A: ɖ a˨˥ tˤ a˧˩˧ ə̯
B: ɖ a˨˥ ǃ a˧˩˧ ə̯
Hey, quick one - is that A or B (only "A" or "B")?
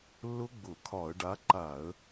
B